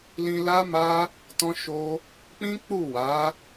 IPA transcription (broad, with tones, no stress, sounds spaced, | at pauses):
l ĩ˧ l a˦ m a˦ | t ɔ̃˦ ʃ o˦ | k͡p ĩ˦ k͡p u˦˨ w a˨˦